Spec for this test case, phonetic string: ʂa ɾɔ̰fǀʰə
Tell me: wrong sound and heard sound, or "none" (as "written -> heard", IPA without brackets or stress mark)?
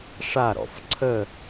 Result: none